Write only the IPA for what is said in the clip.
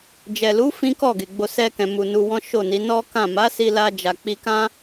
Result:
d͡ʒɛ˨lu˨˦ fĩ˦kɔ˦˨ɡe˨ɡ͡bo˧ sɛ˧kɛ̃˨mu˨ nu˧wɔ̃˦ʃo˦˨ni˨˦ nɔ˦kã˦˨ ma˨˦si˧ la˧d͡ʒa˨k͡pi˧kã˦

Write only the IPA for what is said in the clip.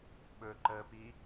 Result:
ɓɵ ǃəpi

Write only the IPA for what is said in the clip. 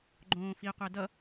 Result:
ɡ͡ǃõːfiqʷɛ dʌ

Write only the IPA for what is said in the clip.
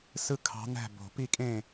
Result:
sɯ˥˨ kʰɑ̤˧˥næ̤˥˨ bo̤˨˩˦pi˥˨kʼẽ˥˨

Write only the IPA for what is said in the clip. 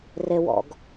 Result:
rewɔ̰ɡ

